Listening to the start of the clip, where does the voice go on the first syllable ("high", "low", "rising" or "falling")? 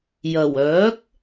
low